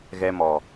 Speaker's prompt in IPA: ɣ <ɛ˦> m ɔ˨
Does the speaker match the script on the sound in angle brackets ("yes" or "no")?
yes